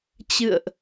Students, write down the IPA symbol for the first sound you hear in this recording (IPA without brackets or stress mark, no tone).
t͡ɕ